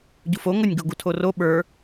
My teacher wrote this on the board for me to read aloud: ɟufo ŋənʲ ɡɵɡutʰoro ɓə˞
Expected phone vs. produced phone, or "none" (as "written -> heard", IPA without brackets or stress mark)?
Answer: ɵ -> o